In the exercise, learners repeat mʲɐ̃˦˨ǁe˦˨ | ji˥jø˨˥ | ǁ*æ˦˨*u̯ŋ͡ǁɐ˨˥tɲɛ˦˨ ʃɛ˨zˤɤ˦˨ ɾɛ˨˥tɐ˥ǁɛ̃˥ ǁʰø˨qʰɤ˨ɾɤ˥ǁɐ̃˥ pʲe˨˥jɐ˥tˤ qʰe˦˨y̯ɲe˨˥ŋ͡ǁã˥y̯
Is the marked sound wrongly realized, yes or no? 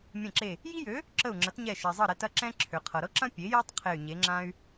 yes